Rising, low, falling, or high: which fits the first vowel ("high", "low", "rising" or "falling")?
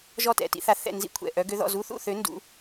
falling